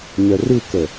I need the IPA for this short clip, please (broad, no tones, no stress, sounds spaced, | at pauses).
ɲ œ r ɯ k ə